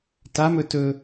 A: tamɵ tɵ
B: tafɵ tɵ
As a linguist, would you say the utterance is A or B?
A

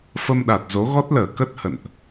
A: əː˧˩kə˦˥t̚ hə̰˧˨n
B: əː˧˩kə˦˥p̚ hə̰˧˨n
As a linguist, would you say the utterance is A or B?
A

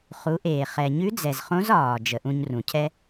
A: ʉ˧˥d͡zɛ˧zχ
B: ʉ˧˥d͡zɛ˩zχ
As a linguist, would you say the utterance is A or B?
B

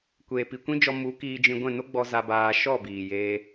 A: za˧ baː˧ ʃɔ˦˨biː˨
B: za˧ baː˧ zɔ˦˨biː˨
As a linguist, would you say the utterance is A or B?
A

